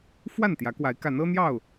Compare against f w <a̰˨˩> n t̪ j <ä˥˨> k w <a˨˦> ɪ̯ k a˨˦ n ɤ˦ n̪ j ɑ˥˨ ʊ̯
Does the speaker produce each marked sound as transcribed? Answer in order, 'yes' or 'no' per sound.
no, no, yes

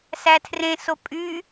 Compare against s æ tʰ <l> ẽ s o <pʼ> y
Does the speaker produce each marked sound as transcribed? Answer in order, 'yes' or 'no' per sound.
no, yes

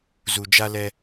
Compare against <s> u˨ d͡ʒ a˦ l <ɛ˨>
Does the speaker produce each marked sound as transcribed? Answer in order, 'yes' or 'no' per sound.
no, no

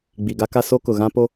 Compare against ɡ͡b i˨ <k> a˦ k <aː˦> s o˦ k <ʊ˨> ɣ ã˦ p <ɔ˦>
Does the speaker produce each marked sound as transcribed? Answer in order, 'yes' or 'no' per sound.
no, no, yes, no

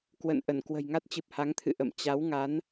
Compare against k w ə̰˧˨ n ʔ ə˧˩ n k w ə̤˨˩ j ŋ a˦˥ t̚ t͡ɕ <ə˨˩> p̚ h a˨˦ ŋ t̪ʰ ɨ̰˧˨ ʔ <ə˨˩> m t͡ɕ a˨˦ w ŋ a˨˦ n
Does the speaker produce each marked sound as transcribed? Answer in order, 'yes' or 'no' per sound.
no, no

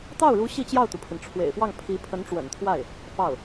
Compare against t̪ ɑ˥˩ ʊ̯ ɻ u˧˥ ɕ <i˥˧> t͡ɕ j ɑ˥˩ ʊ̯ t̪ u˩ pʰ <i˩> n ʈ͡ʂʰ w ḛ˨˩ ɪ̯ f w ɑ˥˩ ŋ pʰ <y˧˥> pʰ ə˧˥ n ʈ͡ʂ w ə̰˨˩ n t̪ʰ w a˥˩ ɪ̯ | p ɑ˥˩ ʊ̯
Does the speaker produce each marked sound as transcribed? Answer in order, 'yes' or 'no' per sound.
yes, yes, no

